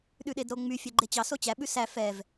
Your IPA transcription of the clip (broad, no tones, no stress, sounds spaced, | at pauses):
ɗ ʉ ɗ e d ɾ o ŋ͡m y fʲ ɛ ɡ͡ǃ e t͡ɕ ɑ s o t͡ɕ æ ɓ ʉ s æ f ɛ v